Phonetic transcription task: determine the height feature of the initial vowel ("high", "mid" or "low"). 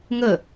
mid